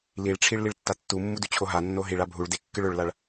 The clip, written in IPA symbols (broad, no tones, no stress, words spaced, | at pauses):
liɭʈ͡ʂʰiɭ liɭtːatːumːu dʉt͡ɕʰoɦanːo ɦiɭa bʱuɭde kːɨɭɵɭlaɭ